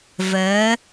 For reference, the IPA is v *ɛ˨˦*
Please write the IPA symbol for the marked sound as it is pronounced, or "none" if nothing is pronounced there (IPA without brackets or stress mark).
ɛ˨˦